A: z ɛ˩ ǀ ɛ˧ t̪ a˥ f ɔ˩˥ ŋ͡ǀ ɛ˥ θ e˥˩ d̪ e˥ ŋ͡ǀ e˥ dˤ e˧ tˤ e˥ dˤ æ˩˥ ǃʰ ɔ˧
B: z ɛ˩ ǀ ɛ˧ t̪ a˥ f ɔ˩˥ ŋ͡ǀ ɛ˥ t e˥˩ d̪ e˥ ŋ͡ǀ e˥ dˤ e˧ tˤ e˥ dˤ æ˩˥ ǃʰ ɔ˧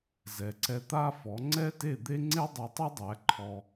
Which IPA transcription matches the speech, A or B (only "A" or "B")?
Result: B